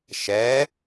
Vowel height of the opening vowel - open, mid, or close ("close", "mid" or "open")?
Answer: mid